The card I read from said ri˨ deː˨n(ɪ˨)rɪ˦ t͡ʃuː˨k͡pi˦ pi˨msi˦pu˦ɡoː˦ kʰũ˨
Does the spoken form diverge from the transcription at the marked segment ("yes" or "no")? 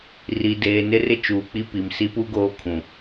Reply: yes